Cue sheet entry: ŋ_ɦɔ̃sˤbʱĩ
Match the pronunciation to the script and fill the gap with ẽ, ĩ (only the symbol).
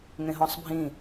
ẽ